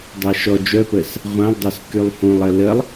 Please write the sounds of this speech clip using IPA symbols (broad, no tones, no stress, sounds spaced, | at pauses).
dˤ a ʃ ɔ d͡ʒ œ p əː s | ʁʷ ã lˠ dˤ o s k y lˠ h ũ lˠ ə l ə lˠ